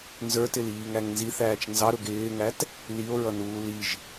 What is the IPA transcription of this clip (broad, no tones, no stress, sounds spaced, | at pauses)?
n z ə˞ t ɪ l iː ŋ æ ŋ n z i θ æː t͡ʃ n z ɑ ɾ ʊ ɡ ɪː ŋ æ t | l i o̯ ɹ ʌ n uː l i ʒ